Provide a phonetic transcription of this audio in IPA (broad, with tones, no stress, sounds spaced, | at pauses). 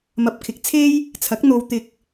m ɐ˨ p̚ kʰ ɪ˨ k̚ t͡sʰ e˥ j | t͡sʰ ɐ˨˥ k̚ n̪ o˧ w t̪ ɪ˧ k̚